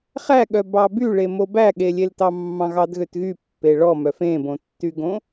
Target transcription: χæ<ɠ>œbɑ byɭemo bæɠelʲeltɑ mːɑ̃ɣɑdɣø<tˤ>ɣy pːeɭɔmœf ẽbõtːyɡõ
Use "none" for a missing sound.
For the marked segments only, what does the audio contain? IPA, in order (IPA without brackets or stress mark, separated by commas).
ɠ, t